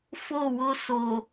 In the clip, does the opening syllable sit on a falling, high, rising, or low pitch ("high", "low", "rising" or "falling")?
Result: falling